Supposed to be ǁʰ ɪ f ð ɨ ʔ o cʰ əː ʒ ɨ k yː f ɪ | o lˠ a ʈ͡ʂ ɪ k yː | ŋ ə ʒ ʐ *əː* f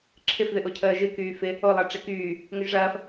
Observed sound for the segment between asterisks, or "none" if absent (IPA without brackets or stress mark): ɐː